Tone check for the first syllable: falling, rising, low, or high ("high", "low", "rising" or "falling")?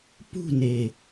falling